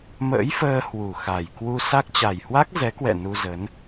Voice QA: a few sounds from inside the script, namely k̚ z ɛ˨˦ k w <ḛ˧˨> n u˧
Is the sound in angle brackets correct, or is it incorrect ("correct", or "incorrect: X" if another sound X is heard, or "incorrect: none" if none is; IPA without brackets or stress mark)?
incorrect: ɛ̰˧˨